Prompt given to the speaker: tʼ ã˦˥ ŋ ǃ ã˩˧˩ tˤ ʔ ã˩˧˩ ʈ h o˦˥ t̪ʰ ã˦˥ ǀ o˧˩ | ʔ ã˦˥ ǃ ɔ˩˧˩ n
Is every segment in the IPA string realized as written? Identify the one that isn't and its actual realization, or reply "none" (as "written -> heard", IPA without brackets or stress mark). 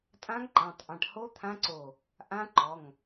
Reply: n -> ŋ